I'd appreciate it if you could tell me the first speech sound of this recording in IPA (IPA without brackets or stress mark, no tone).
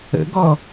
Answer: ə̰